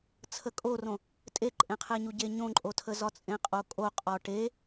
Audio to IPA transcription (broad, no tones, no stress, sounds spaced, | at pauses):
t͡sʰ ə kʼ o r õ | tʼ e ǃʼ ẽ qʰ e ɲ u ɟ e ɲ õ ǃʼ o tʰ ə z ɒ t͡sʼ ẽ qʼ o kʼ o qʼ ɒ ʈ e